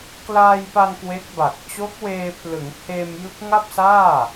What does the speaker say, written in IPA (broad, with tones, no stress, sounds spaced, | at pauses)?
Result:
k l aː˧ j p a˧ n k w e˦˥ k̚ b a˨˩ k̚ t͡ɕ o˦˥ k̚ w eː˧ pʰ l ɯ˩˦ ŋ h eː˧ m j ɯ˦˥ k̚ ŋ a˥˩ p̚ s aː˥˩